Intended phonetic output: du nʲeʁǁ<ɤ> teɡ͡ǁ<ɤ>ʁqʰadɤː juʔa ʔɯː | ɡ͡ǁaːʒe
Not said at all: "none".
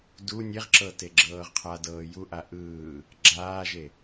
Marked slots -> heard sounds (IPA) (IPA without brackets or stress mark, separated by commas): ɤ, ɤː